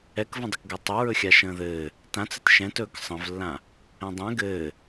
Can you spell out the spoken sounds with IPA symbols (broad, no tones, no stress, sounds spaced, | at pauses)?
ɛ k v ə̃ dˤ ə k ɡ ɜ tˤ ɘ ɹ ɵ xʲ a ʃ ə̃ː ð ɘː | t ã t͡s ɘ t ʃ ɛ̃ t ɵː k sˤ ə̃ v lː ã | ɛ̃ dˤ ɛ̃ ɡ ɘː